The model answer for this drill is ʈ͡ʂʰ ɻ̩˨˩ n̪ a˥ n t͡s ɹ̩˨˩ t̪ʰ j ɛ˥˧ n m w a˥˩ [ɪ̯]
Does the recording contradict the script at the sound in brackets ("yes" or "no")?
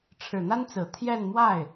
no